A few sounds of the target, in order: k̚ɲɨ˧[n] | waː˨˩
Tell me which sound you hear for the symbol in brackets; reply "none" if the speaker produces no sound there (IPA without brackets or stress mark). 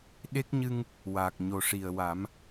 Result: ŋ